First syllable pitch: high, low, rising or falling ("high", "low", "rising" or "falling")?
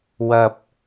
low